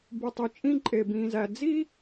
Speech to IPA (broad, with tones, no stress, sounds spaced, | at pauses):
b u˨ tˤ y˨ t͡ʃʼ ĩ˦ ǃʼ e˨ b ĩː˨ z æ˨ d͡z i˦